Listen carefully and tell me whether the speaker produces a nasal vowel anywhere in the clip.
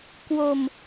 no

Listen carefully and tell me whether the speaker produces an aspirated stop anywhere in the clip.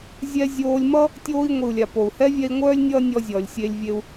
no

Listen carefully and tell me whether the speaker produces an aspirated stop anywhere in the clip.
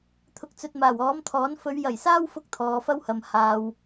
yes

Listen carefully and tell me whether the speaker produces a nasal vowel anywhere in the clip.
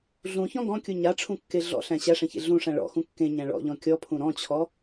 yes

